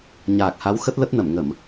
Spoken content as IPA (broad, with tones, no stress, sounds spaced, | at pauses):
ɲ aː˨˩ k̚ h a˨˦ w x ə˦˥ t̚ l ə˦˥ t̚ n ə˧˩ m ŋ ə˧˩˨ m